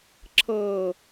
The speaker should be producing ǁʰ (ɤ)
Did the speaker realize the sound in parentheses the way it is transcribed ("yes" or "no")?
yes